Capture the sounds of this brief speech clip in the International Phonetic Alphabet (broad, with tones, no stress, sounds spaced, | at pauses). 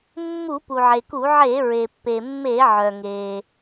mː u˧˩˧ p u˩ ʕ e˩ k u˧˩˧ ʕ e˧˩˧ ɹ e˩ pː e˩ mː e˧˩˧ ʕ œ˩ ŋ e˩